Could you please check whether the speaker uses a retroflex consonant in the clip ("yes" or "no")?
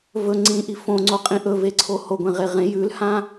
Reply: no